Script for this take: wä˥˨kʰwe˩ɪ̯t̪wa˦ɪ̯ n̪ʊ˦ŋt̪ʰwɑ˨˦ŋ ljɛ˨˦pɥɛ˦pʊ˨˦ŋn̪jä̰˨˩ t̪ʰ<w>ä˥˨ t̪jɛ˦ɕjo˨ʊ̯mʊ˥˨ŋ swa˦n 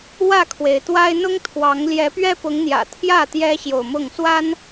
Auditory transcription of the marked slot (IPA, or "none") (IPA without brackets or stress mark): j